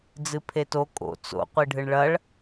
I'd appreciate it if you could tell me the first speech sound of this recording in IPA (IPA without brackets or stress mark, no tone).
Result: d͡z